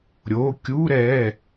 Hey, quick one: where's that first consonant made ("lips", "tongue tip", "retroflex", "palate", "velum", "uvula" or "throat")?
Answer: tongue tip